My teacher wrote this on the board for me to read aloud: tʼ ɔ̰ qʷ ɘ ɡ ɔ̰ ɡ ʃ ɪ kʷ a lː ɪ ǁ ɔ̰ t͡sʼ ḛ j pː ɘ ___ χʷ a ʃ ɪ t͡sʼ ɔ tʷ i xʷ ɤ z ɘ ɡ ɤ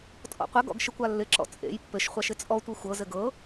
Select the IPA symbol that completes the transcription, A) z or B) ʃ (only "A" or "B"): B